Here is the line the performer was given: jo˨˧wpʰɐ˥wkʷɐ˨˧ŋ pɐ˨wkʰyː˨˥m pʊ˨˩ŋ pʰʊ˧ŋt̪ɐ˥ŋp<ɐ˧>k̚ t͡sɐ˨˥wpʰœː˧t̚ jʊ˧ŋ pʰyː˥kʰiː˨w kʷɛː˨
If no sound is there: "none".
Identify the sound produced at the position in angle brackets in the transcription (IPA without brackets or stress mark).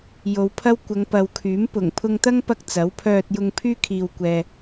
ɐ˧